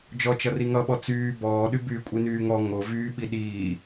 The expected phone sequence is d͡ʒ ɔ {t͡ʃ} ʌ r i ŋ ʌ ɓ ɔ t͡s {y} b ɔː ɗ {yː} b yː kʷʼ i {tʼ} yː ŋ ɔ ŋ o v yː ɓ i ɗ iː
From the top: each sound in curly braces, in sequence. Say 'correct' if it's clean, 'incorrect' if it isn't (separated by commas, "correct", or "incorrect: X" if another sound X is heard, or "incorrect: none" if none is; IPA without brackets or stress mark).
correct, incorrect: yː, incorrect: y, incorrect: n